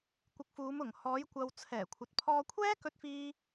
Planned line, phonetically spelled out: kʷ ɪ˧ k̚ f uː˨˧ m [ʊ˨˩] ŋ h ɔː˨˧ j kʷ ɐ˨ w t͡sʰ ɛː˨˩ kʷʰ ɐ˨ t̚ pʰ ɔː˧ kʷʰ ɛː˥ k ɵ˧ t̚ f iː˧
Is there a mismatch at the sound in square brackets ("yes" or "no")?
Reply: no